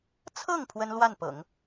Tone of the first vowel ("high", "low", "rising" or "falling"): falling